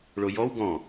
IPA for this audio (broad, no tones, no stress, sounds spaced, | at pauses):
ɭ o j ɔ w ɡ ɔ̃